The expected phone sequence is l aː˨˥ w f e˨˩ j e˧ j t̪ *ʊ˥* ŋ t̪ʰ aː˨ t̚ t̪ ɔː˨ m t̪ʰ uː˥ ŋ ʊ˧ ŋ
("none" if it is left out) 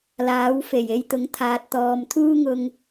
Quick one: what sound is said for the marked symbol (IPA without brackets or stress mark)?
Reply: ʊ˨˥